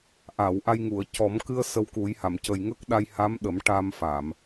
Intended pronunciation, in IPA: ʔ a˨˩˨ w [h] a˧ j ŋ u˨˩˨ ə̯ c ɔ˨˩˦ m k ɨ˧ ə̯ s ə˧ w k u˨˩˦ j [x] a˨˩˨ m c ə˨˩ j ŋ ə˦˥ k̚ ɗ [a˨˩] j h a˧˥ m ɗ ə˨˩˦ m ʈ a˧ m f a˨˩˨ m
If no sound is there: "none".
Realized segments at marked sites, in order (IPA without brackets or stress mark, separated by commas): ʔ, h, a˧